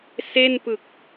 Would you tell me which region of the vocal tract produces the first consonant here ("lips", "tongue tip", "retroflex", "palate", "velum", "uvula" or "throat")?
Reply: tongue tip